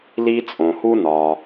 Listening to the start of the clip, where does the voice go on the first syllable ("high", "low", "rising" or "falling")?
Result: high